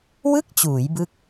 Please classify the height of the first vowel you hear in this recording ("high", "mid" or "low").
high